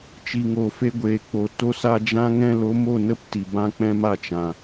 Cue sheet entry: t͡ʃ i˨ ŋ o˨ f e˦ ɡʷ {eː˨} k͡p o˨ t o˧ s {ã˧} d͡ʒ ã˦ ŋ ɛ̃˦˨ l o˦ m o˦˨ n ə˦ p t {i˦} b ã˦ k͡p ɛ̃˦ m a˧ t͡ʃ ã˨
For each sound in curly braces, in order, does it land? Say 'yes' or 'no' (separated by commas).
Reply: yes, no, no